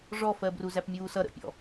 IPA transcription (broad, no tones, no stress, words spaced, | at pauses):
ʐɔfɜbru zæpmʲuːsʌ ɾə̰pʲɔ̰